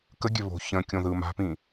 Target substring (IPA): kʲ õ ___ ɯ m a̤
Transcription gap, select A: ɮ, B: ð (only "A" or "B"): B